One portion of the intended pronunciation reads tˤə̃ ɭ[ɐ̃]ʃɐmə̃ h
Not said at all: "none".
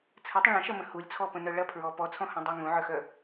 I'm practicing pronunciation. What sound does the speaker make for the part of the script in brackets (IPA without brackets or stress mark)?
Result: ɐ̃